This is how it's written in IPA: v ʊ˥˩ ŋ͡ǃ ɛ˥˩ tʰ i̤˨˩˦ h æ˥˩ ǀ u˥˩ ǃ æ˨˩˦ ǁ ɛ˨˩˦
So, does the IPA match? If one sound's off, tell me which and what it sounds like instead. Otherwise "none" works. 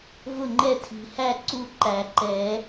ǁ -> ǃ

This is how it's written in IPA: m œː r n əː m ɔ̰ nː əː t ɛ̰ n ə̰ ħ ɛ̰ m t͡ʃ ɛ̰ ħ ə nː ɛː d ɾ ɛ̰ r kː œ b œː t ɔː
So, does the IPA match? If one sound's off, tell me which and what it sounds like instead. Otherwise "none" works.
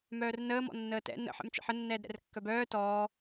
none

